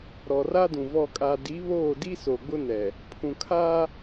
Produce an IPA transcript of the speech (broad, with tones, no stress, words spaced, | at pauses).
ɾɔ˨ra˦dũ˨ vɔ˨ kʼa˨di˨˦βoː˦˨ di˦ so˨ɡ͡bʊ˦nɛ˨ | pʰũ˨kʰaː˦